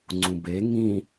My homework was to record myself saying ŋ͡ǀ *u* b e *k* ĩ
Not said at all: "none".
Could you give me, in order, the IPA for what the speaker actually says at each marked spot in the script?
ũ, ŋ

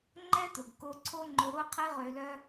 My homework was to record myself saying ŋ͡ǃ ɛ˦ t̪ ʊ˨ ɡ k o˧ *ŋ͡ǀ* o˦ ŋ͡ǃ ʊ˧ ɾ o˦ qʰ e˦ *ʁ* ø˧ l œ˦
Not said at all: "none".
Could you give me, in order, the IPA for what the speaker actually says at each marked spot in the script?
ǀʰ, ʁ

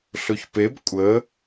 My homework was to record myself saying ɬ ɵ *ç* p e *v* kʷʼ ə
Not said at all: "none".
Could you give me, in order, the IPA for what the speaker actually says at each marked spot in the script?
ç, b

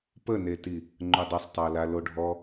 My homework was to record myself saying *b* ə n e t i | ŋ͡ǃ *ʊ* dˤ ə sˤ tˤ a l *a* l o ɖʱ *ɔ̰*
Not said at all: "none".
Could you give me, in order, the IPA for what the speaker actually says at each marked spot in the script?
p, ʊ, a, ɔ

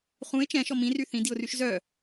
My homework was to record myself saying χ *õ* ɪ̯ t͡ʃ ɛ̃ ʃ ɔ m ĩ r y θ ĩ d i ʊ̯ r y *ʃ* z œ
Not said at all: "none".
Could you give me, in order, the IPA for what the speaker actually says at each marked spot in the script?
ũ, ʃ

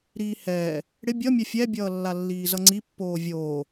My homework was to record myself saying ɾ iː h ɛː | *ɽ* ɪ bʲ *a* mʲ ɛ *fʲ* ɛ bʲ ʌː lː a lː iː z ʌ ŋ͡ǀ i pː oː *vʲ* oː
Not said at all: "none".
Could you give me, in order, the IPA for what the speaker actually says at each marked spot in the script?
ɽ, ʌ, fʲ, vʲ

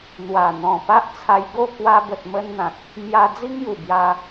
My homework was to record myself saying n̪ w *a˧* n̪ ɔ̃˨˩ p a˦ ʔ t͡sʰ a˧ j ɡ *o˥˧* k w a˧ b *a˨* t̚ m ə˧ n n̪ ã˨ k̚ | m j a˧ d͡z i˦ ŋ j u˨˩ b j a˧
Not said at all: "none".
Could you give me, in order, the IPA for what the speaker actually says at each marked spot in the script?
a˨˩, o˥˧, ə˨

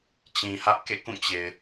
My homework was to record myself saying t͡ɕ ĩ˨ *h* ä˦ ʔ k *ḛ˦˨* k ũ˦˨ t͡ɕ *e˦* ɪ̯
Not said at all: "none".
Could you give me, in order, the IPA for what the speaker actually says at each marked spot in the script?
h, ḛ˦˨, e˨

